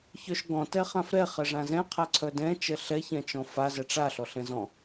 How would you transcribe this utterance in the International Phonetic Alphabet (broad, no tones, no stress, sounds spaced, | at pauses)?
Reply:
ç œ ʃ ɡ ɔ̃ t ɛ χ ã f ɾ ɛ χ ɛ ʐ ã z ɛ̃ qʰ a ǀʰ œ d ɛ̃ t͡ʃ ɛ ɬ ɛ ç ɛ̃ t͡ʃ ɔ̃ f a z ɛ ʈ͡ʂ a ɬ ɔ ɬ ɛ̃ z ɔ̃